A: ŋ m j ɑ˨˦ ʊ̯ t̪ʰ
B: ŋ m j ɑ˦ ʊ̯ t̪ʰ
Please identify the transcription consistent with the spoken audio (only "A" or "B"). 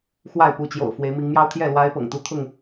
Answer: B